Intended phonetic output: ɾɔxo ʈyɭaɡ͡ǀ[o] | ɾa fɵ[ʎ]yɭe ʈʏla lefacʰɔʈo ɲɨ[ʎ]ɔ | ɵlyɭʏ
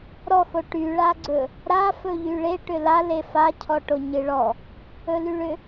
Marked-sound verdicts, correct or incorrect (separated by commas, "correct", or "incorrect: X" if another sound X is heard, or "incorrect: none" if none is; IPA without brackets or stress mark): incorrect: ɵ, correct, incorrect: ɭ